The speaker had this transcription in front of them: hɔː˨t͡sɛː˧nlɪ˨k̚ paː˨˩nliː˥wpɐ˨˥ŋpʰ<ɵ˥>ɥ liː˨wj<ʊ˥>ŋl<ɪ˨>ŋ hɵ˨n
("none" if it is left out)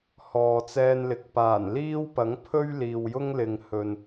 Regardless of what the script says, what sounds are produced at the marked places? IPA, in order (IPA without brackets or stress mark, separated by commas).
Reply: ɵ˥, ʊ˥, ɪ˨